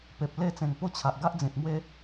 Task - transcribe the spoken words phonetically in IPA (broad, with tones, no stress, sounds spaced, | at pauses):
p e˨ p̚ l e˥˧ t͡s ẽ˨˩ ŋ p o˦ t͡ɕʰ a˨ ʔ ɡ a˦ ʔ d͡z ĩ˨ t̚ m w e˦